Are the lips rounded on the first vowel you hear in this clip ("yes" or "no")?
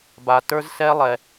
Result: no